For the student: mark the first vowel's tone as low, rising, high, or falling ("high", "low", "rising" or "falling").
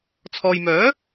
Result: low